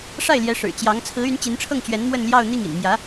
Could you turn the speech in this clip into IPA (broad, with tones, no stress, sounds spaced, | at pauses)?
ʂ a˥˩ ɪ̯ l j ɛ˧˥ ʂ ɻ̩˨˩ t͡ɕ j ɑ˧˥ ŋ t͡sʰ ɹ̩˧˥ y˧˥ n t͡ɕ i˧˥ n ʈ͡ʂʰ ɤ˥˩ ŋ t͡ɕ ɥ ɛ˧˥ n m w ə˥˧ n l j ɑ˥˧ ʊ̯ n̪ i˥˩ ŋ ḭ˨˩ n m j ä˧˥